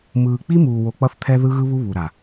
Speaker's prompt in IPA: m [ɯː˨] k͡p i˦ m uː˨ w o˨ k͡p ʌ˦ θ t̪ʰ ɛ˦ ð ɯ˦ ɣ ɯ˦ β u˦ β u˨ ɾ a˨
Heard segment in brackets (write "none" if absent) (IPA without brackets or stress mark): ɯː˨